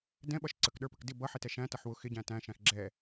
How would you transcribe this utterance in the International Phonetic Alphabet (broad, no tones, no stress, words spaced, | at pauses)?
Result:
dɛ̃ɓʌʃ ǀəkɗə˞pək dɪ bʌħɪtɛ ʃæ̃tʌħ wʊ xɪɟæ̃ tæ̃ʃæ̃x ɡ͡ǁɛ